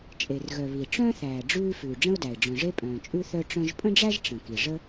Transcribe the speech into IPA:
t͡ʃʼe˩rɣœ˩ βi˩ʈ͡ʂœ̃ː˥θ æː˩ ɖ͡ʐʉː˥ fʉː˩ɖ͡ʐə̃˥ʊ̯dæ˩ɪ̯ ɖ͡ʐœ̃˩ʐe˥pʼœ̃ː˩t͡ʃʼʉ˥ θœ˥ʈ͡ʂœ̃˥ʒ pʼə̃˥ɖ͡ʐæ˥ʒ ʈ͡ʂə̃˩ki˩ ʐə˥

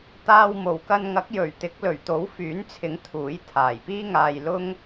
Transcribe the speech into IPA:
t̪aː˧w mo˨˩wkɐ˧nŋɐ˨˥k̚ jɵ˨˩ɥt̪ɪ˨˥k̚ lɵ˨˩ɥt̪o˨˥wfyː˨˥nt͡sʰɪ˨˥ŋ t̪ʰuː˨˥jt̪ʰaː˨˩jpiː˥ ŋaː˧jlʊ˥ŋ

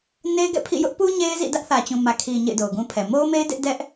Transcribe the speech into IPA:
ne˦ɪ̯ɡɛ̰˦˨pʰḭ˦˨ jʊ˦ʔpu˦ ɲe˦ɪ̯zḭ˦˨ dä˦ʔθä˨t͡ɕũ˨mä˨ kʰi˨ ɲḛ˦˨ɪ̯do˨ʊ̯ɡũ˦pʰɛ˨ mo˦ʊ̯me˦ɪ̯ dɪ˦ʔ dɛ˦ʔ

